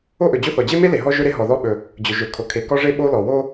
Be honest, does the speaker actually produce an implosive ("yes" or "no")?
yes